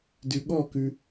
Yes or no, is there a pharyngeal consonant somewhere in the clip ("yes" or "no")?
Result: no